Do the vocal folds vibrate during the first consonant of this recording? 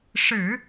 no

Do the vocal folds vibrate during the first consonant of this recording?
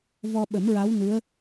yes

